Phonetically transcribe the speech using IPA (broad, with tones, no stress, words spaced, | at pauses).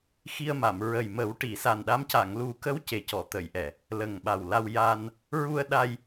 xi˧ə̯ma˨˩˨m ɹə˨˩jmə˨˩˦w ʈi˨˩˨sa˨˩nɗa˧˥m ca˨˩˨ŋlu˨˩˦kə˧˥w ce˨˩cɔ˨˩˨t̪ə˨˩˨jʔɛ˨˩˨ | lə˨˩ŋɓa˨˩wla˧w ja˧n | ɹu˧ə̯ ɗa˧j